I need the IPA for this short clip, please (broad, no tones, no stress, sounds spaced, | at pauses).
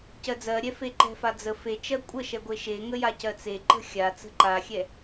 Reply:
c ɜ d͡z ɜ ɾʲ ɛ f e ǃ ɛ̤ f a d͡z ə f e t͡ʃ ɜ kʷʼ ə ʃ ɛ ɡʷ e ʃ e ŋ ə j a c ɜ t͡s e ǃ ə̤ xʲ a t͡s ə̤ ǃ a xʲ ɛ